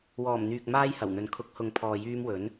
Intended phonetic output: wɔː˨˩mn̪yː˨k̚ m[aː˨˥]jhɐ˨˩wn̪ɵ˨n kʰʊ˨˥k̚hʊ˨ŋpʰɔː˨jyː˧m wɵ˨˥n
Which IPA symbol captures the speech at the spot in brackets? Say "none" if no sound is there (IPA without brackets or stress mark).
aː˥